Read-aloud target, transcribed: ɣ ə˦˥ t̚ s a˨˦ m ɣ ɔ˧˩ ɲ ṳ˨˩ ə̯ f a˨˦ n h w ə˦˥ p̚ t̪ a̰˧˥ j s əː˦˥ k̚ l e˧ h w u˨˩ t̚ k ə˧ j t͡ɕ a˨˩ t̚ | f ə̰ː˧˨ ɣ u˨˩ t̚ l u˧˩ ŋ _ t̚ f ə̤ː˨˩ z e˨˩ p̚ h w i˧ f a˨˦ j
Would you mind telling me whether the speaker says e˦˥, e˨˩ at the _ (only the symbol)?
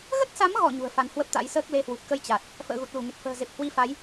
e˨˩